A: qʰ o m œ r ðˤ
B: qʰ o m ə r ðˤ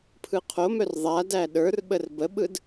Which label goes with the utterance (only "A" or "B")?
A